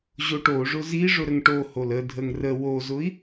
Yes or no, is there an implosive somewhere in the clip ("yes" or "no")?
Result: no